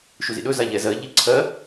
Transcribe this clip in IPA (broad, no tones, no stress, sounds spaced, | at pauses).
ʃ u z ḭ ɗ ɵ z a ʎ ɛ z ɜ ʎ i ǀʰ ɜ